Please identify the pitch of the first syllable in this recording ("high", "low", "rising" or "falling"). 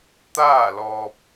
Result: falling